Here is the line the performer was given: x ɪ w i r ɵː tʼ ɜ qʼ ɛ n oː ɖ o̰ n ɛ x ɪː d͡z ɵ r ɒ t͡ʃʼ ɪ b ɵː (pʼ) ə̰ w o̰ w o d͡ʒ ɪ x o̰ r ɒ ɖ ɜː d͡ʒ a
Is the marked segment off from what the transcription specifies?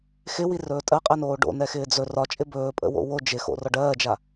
no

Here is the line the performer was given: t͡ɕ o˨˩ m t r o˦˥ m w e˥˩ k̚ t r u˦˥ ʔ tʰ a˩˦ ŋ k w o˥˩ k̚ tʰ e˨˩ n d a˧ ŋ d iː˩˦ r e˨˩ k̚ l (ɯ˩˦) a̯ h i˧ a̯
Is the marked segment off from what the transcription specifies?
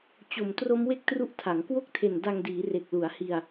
yes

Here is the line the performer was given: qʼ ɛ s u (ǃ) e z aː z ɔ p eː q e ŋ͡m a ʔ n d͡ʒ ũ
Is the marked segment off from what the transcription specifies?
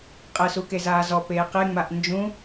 yes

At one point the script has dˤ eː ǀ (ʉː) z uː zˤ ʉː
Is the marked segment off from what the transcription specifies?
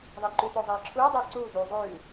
yes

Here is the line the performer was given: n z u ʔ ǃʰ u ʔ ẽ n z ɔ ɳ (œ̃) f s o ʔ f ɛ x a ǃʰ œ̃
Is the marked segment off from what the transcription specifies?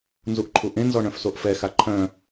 no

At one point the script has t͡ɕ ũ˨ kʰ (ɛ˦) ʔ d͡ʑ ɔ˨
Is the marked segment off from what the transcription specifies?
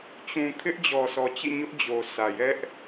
yes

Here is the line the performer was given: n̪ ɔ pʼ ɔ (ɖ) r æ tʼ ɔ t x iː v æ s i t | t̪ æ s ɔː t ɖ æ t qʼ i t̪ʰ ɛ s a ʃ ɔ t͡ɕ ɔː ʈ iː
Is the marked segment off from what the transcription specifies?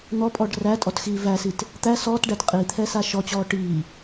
no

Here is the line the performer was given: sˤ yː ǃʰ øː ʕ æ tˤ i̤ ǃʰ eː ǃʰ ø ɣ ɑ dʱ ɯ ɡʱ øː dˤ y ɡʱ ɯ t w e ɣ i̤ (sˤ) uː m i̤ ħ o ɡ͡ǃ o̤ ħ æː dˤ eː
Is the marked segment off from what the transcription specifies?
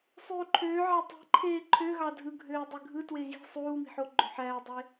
no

